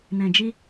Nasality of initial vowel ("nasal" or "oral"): nasal